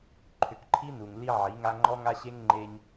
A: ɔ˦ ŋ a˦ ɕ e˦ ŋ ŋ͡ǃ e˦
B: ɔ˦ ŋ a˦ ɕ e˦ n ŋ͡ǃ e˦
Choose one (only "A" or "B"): A